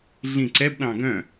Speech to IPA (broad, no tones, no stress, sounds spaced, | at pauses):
ɮ ĩ ǀ ɛ b ɗ ɑ̃ ɡ œ̃